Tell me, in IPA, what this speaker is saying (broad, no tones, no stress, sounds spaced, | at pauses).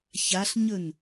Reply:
ç a ɬ ɲ ɵ n